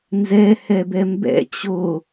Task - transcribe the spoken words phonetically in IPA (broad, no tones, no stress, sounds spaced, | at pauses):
n z ɛ h ɛ b ɛ m b ɛ̰ t͡ɕ o